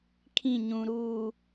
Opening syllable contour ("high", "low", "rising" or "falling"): falling